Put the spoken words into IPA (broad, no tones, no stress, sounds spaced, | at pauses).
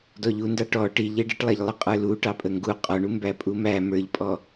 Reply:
d ɔ ʎ u n d ɑ ʈ ɔ ʈ i ʎ ɛ ɖ i ʈ lˠ æ ʎ lˠ ə qʼ ə˞ l u ʈ ɑ pʼ ə ŋ ɡ u qʼ ɔ ɳ u m b æ pʼ u m æ m ə˞ ʎ pʼ ɔ